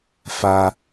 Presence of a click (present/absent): absent